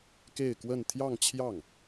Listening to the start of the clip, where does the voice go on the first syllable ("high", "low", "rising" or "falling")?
falling